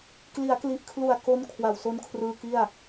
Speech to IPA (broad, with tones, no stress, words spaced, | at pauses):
kli˩˦a̯kli˨˩ʔkʰlu˨˩a̯ ko˦˥n kʰwa˨˩wso˦˥nkʰrɯː˧ ki˥˩a̯